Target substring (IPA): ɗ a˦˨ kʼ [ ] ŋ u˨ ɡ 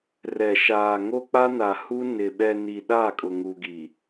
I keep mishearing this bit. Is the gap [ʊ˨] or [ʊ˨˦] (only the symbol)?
ʊ˨